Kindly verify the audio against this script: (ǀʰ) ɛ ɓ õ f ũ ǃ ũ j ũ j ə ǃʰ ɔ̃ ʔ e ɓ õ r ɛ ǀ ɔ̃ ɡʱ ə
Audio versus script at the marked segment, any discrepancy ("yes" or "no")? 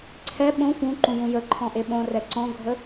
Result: no